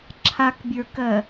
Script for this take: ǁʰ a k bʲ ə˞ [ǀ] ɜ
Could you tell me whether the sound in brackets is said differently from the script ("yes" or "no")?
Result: yes